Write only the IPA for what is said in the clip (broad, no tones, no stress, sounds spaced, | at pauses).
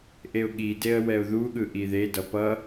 ʔ e ʊ̯ ɠ i d e ə̯ w ɛ ʊ̯ ð u ɠ ɯ ʔ i ð e d ʌ p ʌ